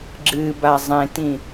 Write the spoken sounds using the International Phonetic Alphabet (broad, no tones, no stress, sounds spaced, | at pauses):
ɡ͡ǁ ɨ b a zˤ ẽ t ĩ